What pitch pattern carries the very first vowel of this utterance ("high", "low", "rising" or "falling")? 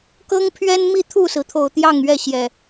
high